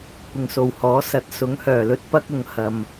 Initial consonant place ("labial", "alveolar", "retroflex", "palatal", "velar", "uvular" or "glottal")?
velar